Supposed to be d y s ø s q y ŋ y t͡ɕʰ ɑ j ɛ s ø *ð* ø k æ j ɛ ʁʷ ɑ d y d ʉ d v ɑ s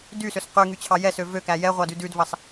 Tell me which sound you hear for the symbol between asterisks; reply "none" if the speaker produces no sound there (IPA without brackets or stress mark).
v